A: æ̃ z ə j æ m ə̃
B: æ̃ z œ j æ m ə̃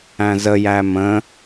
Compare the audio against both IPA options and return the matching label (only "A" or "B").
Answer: A